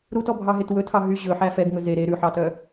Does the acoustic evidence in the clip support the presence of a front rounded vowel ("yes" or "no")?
yes